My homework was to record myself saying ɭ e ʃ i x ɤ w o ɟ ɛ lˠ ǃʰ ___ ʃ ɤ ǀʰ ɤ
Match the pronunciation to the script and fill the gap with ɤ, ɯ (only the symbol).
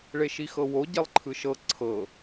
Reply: ɯ